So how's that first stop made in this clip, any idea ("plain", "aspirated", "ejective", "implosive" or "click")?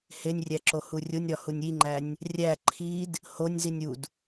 click